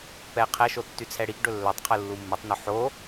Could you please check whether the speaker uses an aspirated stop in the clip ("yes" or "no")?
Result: yes